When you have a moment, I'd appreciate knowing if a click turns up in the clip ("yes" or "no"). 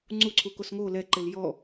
yes